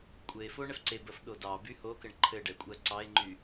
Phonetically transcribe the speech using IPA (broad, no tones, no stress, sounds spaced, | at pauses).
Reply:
kʷʼ ɘ e̯ f o ɳ ɛ f ǀ e b ɜ f ɗ o d ɑ b y h o k ɘ ɳ ǃʰ ɘ ɖ ɛ kʷʼ ɜ ǀ ɑ e̯ ŋ͡ǃ y